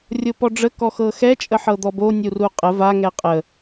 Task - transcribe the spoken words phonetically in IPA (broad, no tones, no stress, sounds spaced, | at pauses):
rʲ o p ɔ ɖ͡ʐ ə k ɔ x ɤ x ɛ t͡ʃʼ ə ħ ɤ d̪ ɔ b o nʲ u r u qʼ ə v a ŋ ɛ qʼ ə